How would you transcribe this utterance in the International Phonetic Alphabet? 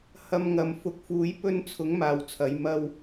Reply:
hɐ˧mŋɐ˨˧m fʊ˧k̚ fuː˨˧jpɵ˧nt͡sʰʊ˨˥ŋ maː˨wt͡sʰɐ˨˥jmɐ˥w

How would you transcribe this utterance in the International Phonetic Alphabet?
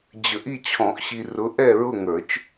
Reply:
d͡ʑə˨˩˦ʔi˦˨ t͡ɕʰɔ̃˨˩˦ʔɕi˨rʊ˨˦ ʔɛ˦˨ɹʊ˦˨ŋə˞˨˩˦t͡ʃ

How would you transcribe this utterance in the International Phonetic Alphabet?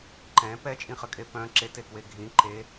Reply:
ǃɛ̃ pɛt͡ʃʼĩχəkʼe pœ̃ ǁetekwe ɡʱĩ ǃe

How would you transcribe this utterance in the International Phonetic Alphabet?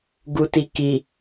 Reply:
ɡutiki

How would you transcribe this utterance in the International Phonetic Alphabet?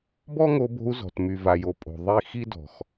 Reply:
bɔ˦ŋo˧bo̤˧u̯ zɔ̤˨tmy˨ va˨jo˨ pʼo̤˨ ðˤi˦˨ xi˦dɔ̤˨x

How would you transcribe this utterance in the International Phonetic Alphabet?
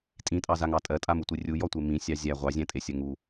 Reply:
tʼĩtʼɑzaŋɑ tʼɜtʼamutʷi rʲujɔtʷe mĩsʲɑ zʲæ ʁʷɑzʲæ̃tʼesʲɜ ŋu

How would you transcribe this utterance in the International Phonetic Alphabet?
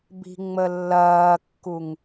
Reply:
bi̤ŋ͡məlːɐːkːuŋ

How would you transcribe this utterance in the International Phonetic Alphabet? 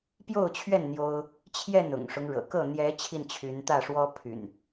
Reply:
pjo˥˨ʊ̯t͡ɕʰɥɛ˥˨n n̪jo˦ʊ̯ | t͡ɕʰjɛ˥˨nʊ̰˨˩ŋʂʊ˦ŋ ɻɤ̰˨˩kɤ˥˨ n̪jɛ˨˦ t͡ɕʰi˥˨nt͡ɕʰy˨˦nt̪ä˥˨ ʂwɔ˦pʰy̰˨˩n

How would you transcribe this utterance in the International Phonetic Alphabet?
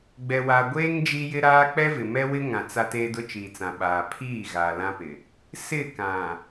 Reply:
ɡ͡bɛ˨wa˨ɡʷeː˦ŋ d͡ʒi˦jɪ˦ɾaː˦ k͡pɛ˦vɪ˨mɛ˦wɪ˦ ŋã˨t͡sa˦ teː˦dʊ˦t͡ʃiː˨t͡sã˨ ɓaː˨ pʰiː˦˨ ɣaː˨lã˦pɪ˨ | sɪ˦˨ kã˨

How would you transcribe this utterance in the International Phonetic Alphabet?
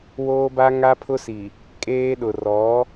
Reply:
woː˦ba˦ ŋa˦pʰʊ˦si˨ | kʼeː˦ɗʊ˨ rɔ˨˦

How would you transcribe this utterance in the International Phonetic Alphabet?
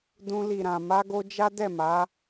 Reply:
dũ˧li˨ɾã˨ ma˧ɡo˧ d͡ʒa˦dɛ˦˨ma˨˦

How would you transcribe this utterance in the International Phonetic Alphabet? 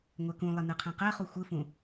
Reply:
ŋʷɛkũlˠe nɯqʰɛ̃qɛχu xʷɯfũ

